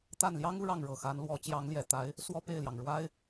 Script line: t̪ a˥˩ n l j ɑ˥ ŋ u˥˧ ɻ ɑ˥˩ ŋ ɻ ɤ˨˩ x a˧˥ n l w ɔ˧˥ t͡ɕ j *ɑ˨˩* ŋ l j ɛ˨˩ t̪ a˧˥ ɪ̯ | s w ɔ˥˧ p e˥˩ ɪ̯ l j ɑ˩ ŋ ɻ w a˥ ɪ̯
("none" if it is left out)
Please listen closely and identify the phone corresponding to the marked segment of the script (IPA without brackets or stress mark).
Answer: ɑ˧˥